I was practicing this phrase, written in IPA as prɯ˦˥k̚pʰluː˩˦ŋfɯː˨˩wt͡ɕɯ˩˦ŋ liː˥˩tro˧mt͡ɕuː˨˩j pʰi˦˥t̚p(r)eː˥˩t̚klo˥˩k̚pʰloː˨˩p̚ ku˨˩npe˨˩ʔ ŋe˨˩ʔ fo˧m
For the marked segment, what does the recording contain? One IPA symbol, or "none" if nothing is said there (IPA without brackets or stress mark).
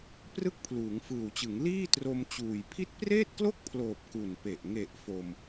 r